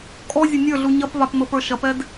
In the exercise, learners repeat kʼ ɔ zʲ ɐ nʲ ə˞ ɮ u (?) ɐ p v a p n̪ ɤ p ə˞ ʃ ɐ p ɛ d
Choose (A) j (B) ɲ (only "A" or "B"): B